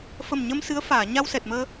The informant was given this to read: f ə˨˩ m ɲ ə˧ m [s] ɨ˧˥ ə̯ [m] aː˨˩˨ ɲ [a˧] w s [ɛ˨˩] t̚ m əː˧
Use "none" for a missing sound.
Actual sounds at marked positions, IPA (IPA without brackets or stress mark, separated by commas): s, f, a˧, ɛ˨˩